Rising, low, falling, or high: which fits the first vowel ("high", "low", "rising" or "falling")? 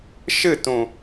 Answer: falling